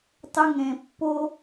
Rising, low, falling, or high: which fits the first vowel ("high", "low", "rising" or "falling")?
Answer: high